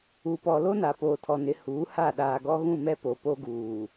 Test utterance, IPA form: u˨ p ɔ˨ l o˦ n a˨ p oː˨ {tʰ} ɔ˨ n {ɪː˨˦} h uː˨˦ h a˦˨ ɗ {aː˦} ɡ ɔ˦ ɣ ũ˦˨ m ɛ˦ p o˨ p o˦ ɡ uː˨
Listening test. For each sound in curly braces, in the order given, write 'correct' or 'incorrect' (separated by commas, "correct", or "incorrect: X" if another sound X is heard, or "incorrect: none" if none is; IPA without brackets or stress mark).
correct, incorrect: ɪ˨˦, incorrect: aː˨